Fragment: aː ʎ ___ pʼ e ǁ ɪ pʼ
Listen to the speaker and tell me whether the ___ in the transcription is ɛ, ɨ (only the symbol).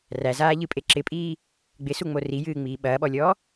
ɨ